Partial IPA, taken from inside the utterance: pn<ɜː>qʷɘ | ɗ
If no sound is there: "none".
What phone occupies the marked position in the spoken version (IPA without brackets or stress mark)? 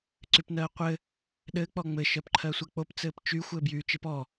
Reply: ɜː